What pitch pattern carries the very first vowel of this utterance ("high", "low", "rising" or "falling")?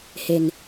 low